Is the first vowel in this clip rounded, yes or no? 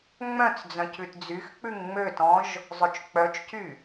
yes